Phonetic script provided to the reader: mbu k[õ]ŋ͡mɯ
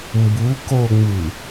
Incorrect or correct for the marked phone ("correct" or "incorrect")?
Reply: incorrect